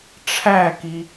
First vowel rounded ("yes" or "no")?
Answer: no